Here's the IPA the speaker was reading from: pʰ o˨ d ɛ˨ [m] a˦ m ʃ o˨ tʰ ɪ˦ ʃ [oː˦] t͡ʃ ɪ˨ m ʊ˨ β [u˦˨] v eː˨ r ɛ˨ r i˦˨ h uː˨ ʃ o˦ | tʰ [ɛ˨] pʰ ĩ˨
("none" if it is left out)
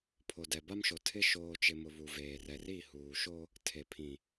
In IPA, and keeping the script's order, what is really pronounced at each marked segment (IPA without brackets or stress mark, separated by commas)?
b, oː˨, u˨, e˨